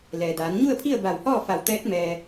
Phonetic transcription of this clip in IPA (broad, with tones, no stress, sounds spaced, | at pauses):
l ɛː˩ d aː˩˧ n ɲ u˥˨ ə̯ pʰ i˥˨ ə̯ b a˧˩ w h ɔː˥˨ f a˧˩ w t̪ ɛː˧˥ t̚ m ɛː˧